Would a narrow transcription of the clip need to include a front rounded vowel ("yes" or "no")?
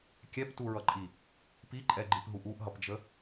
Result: no